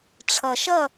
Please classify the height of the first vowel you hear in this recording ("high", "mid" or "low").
mid